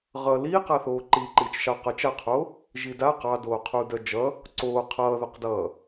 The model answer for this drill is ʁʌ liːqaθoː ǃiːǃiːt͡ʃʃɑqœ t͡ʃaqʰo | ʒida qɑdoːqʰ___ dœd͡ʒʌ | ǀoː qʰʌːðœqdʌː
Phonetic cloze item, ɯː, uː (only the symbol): uː